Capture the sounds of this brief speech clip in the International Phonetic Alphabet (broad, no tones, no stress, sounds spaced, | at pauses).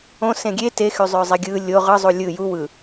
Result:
õ s ẽ ɡʲ e t e x y zˤ ø zˤ i ɡʲ ɯ lʲ o ʁ ɯ zˤ u lʲ ɯ j u w ɯ